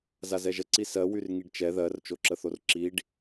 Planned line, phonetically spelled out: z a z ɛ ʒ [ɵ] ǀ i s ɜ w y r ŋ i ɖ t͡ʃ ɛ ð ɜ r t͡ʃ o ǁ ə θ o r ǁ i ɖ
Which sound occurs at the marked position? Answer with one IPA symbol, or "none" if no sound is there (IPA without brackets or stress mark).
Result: ə